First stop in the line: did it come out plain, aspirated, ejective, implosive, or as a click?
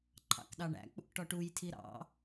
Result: click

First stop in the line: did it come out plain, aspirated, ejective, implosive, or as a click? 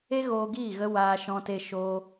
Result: plain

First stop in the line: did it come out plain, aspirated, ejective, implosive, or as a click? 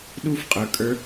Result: implosive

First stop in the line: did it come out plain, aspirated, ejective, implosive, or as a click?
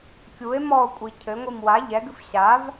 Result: plain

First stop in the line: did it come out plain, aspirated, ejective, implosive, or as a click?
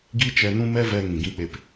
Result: plain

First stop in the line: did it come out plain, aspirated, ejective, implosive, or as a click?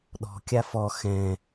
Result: implosive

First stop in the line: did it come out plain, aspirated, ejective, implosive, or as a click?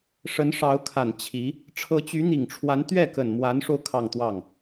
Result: aspirated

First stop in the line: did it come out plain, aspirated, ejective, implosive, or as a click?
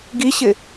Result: plain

